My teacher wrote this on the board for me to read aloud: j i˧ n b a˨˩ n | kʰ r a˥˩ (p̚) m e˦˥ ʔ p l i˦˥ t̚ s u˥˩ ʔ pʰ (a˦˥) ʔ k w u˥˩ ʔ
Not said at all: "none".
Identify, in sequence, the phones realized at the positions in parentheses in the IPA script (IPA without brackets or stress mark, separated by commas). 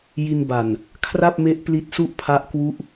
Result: p̚, a˦˥